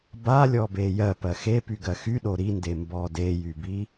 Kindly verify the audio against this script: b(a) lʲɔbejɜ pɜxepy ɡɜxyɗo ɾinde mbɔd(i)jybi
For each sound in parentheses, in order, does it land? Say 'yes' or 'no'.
yes, no

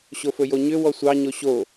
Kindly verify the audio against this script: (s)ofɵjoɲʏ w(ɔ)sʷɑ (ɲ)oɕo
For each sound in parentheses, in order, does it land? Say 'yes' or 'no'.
no, yes, yes

